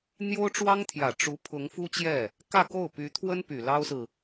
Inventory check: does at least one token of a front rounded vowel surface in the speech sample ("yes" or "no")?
yes